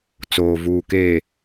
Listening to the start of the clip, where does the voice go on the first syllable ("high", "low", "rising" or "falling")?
low